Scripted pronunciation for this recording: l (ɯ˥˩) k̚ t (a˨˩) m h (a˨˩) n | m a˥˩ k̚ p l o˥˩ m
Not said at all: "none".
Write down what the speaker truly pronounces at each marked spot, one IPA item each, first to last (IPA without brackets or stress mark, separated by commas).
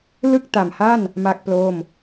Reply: ɯ˥˩, a˨˩, a˥˩